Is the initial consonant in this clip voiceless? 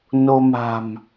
no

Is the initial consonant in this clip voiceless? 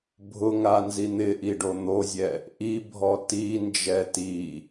no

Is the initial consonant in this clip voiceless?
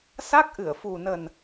yes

